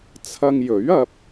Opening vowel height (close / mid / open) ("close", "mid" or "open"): open